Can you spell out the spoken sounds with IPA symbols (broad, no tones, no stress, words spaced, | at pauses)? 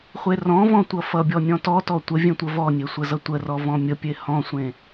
χʷerɔ̃vɔ̃ tʷʌfʌbʲɔ nʲɔ̃tɔtɔ tʷə vʲẽtʷəvɔnʲe sʷəzʌtʷərɔ vɔ̃mʲəpʲe hɔ̃sʷẽ